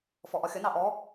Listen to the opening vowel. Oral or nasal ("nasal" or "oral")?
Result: oral